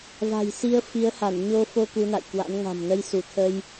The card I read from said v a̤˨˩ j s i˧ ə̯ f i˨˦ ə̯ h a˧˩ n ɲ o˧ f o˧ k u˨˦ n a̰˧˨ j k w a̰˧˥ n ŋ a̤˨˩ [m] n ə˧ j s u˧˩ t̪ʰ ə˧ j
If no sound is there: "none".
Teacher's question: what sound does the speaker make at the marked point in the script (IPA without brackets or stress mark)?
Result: m